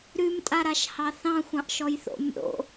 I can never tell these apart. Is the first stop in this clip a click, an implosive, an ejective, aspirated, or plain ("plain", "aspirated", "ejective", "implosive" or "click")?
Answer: ejective